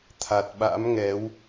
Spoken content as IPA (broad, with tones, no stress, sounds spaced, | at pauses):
t̪ʰ a˨˩ t̚ ɓ a̰˧˥ m ŋ ɛ˨˦ w